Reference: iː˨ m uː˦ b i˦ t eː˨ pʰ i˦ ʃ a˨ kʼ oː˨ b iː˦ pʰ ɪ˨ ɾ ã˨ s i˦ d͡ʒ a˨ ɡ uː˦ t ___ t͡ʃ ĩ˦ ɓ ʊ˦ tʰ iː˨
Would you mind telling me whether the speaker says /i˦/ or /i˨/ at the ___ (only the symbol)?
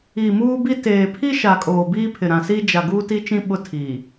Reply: i˦